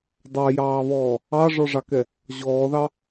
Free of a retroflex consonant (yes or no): no